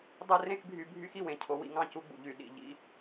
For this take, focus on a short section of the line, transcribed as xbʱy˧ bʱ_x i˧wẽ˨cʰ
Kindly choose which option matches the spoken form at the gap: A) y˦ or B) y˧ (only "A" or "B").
A